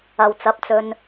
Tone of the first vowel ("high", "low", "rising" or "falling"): low